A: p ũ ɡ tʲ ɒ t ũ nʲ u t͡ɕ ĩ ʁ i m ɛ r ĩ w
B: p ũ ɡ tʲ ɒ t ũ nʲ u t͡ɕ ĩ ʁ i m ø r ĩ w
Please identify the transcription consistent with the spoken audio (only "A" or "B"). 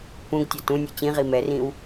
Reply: A